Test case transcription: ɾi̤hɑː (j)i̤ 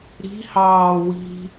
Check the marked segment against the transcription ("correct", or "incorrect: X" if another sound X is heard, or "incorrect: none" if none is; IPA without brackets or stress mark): incorrect: w